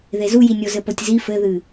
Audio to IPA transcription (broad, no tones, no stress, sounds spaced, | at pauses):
ð e z u j i nʲ o z ɘ p o tʲ z i f ɘ ð ɨ